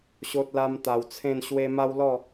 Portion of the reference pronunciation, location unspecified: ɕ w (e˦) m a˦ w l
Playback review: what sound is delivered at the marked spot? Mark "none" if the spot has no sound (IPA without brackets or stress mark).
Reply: e˦